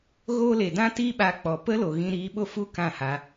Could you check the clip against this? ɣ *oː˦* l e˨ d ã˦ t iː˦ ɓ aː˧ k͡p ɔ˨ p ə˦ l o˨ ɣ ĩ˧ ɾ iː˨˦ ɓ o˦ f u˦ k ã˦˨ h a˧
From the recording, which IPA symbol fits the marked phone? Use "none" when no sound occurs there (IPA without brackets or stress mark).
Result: oː˦